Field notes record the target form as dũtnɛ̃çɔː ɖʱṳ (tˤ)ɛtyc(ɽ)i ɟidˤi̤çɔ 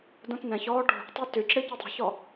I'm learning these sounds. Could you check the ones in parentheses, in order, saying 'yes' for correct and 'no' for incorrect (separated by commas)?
yes, yes